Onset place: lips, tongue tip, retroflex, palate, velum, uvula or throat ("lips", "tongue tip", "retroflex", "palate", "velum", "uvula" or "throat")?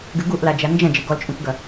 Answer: velum